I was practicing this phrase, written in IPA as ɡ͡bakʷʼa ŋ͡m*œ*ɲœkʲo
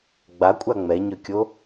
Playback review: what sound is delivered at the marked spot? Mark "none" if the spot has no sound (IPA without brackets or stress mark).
ɛ